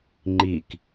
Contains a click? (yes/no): yes